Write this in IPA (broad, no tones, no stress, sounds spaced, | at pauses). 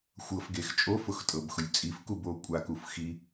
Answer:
xʷ ɤ f ɡ e x t͡ʃʼ o f ʊ x tʼ ɤ b x ʊ lʲ t͡sʼ i f k u b o kʷʼ a k u f x i